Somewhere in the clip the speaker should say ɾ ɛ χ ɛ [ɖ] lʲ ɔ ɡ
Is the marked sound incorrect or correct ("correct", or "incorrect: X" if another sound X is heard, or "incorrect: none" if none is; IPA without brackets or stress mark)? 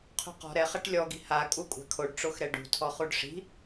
incorrect: ʈ